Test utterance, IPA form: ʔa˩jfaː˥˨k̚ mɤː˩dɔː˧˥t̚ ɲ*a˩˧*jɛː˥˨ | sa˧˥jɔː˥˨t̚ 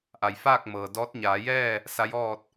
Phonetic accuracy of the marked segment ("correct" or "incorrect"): incorrect